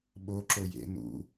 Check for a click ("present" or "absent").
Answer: present